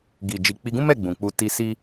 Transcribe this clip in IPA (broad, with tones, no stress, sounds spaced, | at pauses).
ɡ i˨ d͡ʒ i˨ k͡p i˧ ɡ ũ˦ m ɛ˦˨ ɡ͡b ũ˨ k͡p u˧ t i˧ s i˦